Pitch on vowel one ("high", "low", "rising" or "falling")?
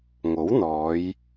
rising